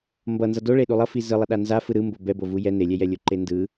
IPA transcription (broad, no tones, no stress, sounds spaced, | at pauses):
m b ʌ n z ʌ d o ɭ e ɗ u lˠ ʌ f i z ɯ lˠ ʌ ɗ a n z a f ɯ ɾ ɯ m b o b ɛ b o v u j ɛ n e lʲ ɛ j ɛ lʲ o ǃ e n d ɯ